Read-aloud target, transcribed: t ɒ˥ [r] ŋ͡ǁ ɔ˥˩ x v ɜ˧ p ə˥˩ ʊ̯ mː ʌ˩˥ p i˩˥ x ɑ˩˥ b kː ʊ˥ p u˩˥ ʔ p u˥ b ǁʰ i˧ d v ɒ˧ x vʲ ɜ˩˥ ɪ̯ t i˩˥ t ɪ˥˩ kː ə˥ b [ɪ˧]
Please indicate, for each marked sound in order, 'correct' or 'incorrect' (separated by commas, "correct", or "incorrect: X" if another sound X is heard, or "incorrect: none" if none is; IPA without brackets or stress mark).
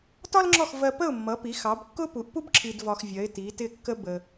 incorrect: l, incorrect: ə˧